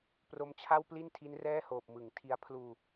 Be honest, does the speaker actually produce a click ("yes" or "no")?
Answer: no